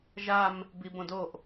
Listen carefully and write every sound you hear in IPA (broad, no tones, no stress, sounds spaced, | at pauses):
ʒ a m | b i b õ d o ʔ